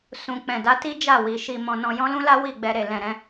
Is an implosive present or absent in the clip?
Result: absent